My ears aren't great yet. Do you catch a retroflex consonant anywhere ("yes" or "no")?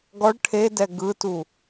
yes